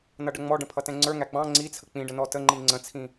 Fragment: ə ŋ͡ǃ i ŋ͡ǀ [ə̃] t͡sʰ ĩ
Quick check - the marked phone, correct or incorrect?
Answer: correct